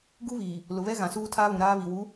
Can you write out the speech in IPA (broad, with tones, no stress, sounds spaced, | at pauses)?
ɡ u˦ β iː˨ | l ʊ˨ β ɛ˦ ɣ ã˨ s uː˦ tʰ aː˦ β ũ˨ ɾ aː˦ β i˨ w u˨˦